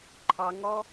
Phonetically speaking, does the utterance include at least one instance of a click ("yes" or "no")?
yes